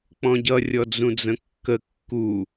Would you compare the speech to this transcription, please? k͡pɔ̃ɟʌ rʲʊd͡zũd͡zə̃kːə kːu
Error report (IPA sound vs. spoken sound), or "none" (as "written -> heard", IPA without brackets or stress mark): ʊ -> ɔ